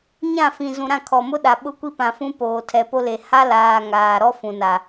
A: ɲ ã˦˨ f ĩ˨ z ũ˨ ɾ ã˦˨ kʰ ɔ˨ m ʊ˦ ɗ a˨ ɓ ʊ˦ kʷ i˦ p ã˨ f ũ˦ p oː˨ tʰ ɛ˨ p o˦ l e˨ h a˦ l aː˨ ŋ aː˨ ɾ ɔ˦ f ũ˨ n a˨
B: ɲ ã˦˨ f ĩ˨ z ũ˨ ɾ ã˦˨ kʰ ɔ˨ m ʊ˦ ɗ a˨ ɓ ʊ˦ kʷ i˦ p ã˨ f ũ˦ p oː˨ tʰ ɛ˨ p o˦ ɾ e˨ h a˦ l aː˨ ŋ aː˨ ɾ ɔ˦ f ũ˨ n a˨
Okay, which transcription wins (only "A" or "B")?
A